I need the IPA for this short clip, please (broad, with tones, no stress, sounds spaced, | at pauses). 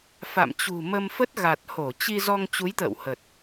f a̰˧˨ m t͡ɕ ṳ˨˩ m ə˧ m f ə˦˥ t̚ ɣ a˨˩ t̚ h o˧˩ t͡ɕ i˧ z ɔ˧ ŋ t͡ɕ u˨˦ j t̪ ə̰ː˧˨ w h ə˨˩ t̚